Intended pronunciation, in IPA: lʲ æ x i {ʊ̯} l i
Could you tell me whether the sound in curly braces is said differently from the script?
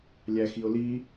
no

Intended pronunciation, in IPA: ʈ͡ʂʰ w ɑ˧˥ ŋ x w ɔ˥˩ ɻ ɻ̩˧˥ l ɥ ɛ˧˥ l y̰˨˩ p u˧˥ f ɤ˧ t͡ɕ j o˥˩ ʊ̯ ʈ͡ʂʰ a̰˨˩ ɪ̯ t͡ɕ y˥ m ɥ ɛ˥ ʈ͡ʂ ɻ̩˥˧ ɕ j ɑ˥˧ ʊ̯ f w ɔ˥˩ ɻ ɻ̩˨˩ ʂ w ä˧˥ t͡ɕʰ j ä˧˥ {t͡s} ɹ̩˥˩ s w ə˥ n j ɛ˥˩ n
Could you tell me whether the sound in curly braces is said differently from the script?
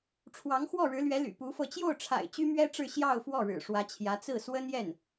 no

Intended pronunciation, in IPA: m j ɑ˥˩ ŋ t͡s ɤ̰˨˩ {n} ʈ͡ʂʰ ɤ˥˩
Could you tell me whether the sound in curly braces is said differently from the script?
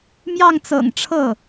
yes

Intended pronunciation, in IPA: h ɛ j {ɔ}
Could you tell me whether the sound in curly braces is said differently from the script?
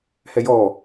no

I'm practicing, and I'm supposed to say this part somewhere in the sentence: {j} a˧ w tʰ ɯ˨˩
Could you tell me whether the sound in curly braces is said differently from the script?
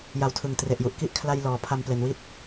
no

